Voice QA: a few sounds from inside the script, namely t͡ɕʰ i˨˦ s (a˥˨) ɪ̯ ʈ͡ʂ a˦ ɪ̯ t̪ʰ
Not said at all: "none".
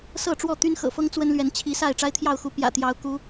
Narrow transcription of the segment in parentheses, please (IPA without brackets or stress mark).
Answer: a˥˨